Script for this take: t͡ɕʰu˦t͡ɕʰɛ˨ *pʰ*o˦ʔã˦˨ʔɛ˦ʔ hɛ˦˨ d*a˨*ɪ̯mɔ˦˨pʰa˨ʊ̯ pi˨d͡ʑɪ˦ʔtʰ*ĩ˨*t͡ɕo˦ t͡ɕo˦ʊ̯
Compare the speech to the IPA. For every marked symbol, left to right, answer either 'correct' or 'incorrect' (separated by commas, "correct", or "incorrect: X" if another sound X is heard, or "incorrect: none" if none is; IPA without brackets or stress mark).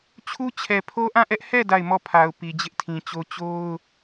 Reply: correct, incorrect: a˦˨, correct